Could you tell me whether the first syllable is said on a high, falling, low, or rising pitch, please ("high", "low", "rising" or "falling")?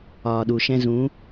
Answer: low